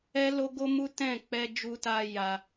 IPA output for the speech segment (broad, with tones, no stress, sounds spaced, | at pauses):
ɛ˦ l o˦ ɡ o˦ m u˦ t ɛ̃˦˨ k͡p ɛ˧ d͡ʒ u˧ t a˧ j a˧